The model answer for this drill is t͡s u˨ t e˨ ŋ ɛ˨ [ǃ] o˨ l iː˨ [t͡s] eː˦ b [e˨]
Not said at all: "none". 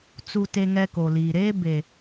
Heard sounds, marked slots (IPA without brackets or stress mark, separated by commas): k, ɾ, e˨